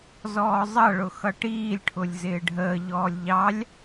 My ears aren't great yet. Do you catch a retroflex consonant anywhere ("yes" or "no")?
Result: yes